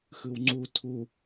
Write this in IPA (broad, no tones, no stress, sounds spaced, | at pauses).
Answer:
x ɯ w ŋ͡ǀ u tʰ u